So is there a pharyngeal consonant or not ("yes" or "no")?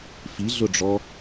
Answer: no